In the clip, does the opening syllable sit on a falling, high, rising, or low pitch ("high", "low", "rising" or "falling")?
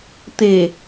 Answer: low